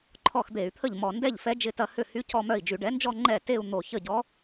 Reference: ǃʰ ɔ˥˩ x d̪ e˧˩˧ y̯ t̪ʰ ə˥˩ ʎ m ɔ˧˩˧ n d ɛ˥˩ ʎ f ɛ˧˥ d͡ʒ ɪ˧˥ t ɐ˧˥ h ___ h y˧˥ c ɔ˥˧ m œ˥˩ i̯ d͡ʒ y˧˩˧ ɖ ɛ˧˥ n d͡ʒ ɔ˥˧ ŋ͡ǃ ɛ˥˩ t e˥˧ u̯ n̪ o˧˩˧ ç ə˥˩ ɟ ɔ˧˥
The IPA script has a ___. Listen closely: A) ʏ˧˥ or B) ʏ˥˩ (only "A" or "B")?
B